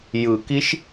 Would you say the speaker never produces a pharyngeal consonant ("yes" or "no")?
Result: yes